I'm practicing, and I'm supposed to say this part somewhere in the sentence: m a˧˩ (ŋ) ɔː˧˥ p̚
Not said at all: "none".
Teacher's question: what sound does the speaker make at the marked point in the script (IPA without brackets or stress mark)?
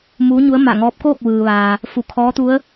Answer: ŋ